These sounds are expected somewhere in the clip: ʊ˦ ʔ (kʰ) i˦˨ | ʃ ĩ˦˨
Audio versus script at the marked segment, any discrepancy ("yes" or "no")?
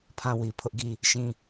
yes